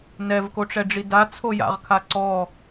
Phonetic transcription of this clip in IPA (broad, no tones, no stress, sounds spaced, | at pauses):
n ɛ v k o ʈ͡ʂ ɛ ɖ͡ʐ i d a t͡sʰ o j a̰ ʁ kʰ a ǀ ɔ